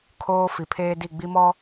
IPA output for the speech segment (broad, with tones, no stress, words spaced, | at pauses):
kʰoː˦ fi˨ pʰeː˦di˦˨ ɡ͡bi˦mɔ˦